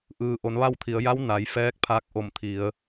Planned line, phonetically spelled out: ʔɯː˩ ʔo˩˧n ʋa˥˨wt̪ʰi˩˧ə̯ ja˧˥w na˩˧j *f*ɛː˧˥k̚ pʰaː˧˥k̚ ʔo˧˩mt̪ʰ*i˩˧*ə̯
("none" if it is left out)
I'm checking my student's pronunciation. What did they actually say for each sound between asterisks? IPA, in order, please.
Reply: f, i˩˧

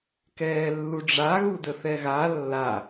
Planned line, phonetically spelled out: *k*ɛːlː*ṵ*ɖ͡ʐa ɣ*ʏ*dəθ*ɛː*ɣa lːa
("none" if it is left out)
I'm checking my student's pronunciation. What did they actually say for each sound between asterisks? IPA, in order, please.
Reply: k, u, u, ɛ

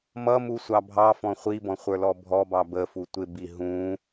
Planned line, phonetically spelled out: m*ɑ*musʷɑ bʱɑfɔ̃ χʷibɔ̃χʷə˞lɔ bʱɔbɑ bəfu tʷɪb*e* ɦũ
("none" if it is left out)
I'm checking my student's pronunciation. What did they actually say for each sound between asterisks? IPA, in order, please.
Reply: ʌ, i

